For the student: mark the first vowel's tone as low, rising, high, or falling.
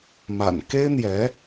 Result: low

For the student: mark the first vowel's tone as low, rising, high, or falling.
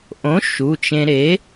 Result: rising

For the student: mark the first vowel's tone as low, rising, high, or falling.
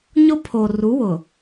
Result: high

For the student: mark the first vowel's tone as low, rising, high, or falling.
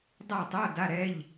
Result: falling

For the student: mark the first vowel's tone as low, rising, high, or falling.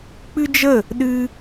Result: high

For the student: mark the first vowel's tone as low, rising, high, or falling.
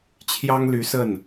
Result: high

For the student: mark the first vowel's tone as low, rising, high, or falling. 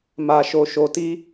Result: low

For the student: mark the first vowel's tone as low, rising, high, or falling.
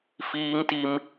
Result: high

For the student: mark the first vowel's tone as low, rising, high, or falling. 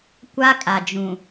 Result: high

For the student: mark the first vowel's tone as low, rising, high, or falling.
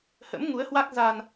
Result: rising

